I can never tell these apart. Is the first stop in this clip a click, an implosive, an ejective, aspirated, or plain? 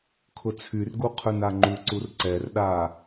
aspirated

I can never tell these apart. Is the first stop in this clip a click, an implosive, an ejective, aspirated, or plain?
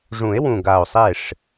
plain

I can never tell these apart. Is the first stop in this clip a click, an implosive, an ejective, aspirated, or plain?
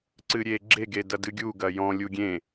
click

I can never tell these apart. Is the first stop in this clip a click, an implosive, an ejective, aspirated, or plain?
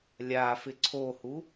click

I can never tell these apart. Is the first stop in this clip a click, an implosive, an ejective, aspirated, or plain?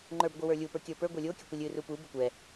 click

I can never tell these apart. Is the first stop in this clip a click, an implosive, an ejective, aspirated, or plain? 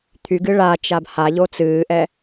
aspirated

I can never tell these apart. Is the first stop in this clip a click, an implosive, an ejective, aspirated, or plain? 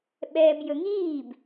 implosive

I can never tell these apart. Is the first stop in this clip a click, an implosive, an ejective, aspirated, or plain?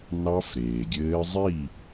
plain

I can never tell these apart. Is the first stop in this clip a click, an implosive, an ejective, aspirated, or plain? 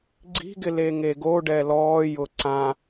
click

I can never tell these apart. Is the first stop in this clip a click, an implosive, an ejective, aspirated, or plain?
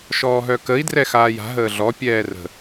plain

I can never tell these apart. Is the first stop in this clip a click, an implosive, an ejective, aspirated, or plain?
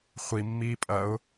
ejective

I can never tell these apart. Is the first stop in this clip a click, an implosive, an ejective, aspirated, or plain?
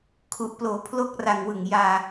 aspirated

